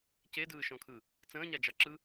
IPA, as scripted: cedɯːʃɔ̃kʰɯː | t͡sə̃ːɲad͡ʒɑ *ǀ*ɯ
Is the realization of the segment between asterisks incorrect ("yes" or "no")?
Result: yes